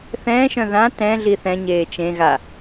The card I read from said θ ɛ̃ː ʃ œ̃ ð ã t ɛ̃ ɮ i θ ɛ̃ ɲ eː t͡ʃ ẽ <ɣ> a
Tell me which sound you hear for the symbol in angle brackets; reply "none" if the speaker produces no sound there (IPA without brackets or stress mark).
ɣ